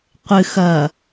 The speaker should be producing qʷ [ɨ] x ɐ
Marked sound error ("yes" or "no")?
no